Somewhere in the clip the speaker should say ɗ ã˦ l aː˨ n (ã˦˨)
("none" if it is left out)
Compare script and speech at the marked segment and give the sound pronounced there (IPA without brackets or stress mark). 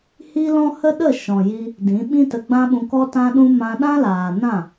ã˦˨